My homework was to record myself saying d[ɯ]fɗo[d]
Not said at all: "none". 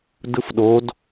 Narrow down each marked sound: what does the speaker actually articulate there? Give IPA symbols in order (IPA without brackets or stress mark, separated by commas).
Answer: ɯ, d